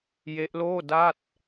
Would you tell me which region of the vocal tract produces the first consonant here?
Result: palate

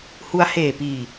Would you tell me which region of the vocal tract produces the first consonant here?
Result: throat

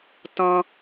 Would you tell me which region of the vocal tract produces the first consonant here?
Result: tongue tip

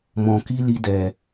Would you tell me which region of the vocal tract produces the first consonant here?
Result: lips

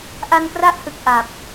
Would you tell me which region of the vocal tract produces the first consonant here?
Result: throat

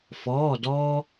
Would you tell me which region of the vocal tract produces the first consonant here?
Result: lips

